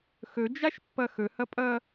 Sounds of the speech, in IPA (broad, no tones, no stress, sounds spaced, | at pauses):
x ɵ d͡ʒ a ʃ pː ʌ x ɵ h ʌ pʼ ʌː